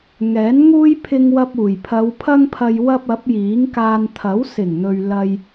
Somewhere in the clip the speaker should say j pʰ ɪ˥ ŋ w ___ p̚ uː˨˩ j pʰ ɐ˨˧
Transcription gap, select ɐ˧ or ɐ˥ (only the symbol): ɐ˥